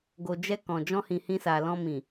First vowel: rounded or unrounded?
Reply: rounded